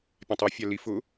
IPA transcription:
pʲãtˤɔ fʲalif ʊ

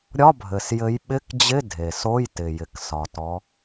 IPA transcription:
ɾʲɒ˧˥˧bʱɘ˨˩sjɘ˨˦j ɓɪ˧˥˧kd͡ʑɪ˧˥˧ dʱe˨˩so˧˥˧j tɪ˨˩jɪ˨˩k sɒ˨˩tɔ˨˦

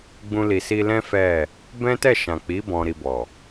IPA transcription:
ɡ͡bũ˧li˨ si˧lɛ̃˦ fɛ˦˨ | bɛ̃˦tɛ˦˨ ʃã˨k͡pi˨˦ bɔ̃˧ɾi˧bɔ˨

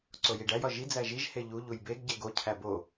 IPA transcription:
ǀojiɖæj ɒʒi d͡zæʒiʒ heʎu ʎujbeɡ ɟeɡo cʰæbo

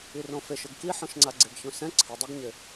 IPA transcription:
irõfeʃ ʊɡkiħɔ̃ʃŋ͡ǀa ɡ͡ǀeɡçõsɛ̃ ǀʰɪdˤɛɡɲɪ

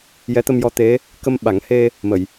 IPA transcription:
jɛ˧˥t̪ə˧mjɔ˧˥t̪e˧˥ | kə˧mɓa˨˩˦ŋhe˧ | mə˨˩˨j

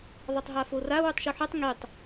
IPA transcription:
ðˤɛtˤɦafora wʉtˤʃoħɛtˤ ŋitˤ

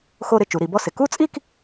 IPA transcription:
xo˥˧ɾɪ˥˧ t͡ʃu˩˧ɾi˩˧bɔ˥˧sɪ˩˧ ku˥˧t͡sʼi˥˧k

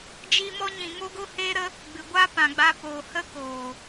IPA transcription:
d͡ʒiː˧mɔ˧ɲĩ˨ ŋo˧ɡo˧heː˧ɾə˧ | ɡ͡bɨ˨ɡʷa˦pã˨ɡ͡ba˧ poː˨ hə˦koː˨

